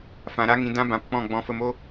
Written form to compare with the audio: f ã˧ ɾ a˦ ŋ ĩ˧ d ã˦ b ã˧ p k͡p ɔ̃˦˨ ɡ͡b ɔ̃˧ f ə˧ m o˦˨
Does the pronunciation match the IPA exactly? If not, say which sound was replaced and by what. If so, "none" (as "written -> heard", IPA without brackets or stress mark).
o˦˨ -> o˦